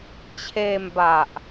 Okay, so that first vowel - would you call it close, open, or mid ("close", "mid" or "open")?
mid